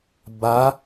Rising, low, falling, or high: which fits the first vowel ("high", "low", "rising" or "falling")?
rising